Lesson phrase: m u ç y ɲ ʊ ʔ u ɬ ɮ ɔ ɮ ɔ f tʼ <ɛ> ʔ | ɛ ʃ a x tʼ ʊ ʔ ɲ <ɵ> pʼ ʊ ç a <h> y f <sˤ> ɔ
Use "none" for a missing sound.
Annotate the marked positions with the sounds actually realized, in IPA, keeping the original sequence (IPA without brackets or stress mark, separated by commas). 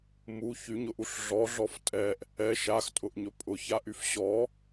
ɛ, ɵ, ʔ, ɕ